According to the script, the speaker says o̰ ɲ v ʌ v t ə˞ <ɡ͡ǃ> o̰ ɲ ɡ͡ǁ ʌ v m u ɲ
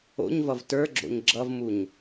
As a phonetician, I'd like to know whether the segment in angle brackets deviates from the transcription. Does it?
yes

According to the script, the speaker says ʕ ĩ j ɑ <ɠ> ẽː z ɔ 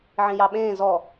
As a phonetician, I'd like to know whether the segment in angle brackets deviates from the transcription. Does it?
yes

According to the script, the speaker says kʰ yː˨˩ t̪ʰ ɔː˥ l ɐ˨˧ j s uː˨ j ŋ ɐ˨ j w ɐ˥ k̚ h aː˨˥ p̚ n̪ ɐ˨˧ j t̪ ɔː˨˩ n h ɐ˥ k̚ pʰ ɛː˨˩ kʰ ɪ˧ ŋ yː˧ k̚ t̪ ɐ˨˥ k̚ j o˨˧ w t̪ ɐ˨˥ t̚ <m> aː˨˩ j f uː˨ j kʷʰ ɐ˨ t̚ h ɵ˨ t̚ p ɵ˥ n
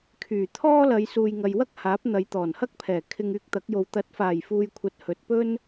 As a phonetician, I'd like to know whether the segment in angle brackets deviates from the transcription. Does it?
yes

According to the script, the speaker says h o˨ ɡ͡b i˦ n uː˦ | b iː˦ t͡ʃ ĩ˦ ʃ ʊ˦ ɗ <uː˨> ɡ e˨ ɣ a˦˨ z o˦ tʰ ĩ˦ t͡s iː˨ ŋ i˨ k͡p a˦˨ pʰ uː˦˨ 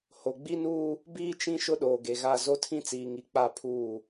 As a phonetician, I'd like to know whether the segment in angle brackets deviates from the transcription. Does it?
yes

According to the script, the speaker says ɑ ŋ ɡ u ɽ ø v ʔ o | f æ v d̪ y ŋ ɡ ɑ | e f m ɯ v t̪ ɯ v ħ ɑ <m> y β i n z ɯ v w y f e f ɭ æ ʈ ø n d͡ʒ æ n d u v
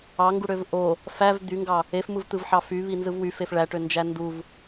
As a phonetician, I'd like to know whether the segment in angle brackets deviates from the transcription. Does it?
yes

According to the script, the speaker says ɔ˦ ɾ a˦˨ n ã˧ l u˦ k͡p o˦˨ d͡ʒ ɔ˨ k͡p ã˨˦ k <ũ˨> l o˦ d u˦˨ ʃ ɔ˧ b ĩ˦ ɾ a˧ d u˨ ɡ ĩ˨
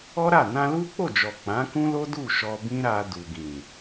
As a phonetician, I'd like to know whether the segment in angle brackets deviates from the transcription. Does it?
yes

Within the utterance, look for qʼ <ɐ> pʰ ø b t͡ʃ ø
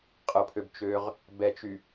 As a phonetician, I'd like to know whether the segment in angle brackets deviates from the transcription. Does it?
yes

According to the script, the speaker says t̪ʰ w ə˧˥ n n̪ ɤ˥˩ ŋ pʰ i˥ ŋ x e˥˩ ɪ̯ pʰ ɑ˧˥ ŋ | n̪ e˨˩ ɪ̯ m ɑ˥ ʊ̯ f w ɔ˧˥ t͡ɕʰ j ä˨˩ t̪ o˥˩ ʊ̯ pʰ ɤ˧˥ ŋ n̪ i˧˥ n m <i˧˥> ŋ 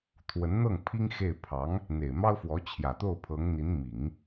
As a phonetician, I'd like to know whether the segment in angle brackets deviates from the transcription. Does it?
yes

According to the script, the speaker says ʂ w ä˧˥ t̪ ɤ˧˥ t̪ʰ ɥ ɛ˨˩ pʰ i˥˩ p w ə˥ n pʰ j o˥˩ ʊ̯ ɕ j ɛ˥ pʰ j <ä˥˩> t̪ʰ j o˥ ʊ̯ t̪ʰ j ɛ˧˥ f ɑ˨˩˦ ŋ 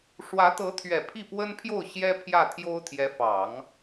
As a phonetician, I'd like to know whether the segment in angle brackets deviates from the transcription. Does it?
no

